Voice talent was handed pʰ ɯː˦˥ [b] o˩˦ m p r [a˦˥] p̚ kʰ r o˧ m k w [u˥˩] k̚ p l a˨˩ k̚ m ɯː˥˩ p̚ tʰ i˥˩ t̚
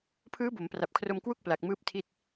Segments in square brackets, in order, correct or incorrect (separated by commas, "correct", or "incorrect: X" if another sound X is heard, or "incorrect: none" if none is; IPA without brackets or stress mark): correct, incorrect: a˨˩, correct